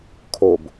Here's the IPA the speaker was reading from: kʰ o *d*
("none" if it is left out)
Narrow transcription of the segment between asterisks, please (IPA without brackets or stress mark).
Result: b